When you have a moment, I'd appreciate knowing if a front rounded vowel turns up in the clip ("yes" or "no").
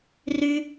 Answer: yes